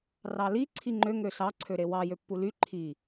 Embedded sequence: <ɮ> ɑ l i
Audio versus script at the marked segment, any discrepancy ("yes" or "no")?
yes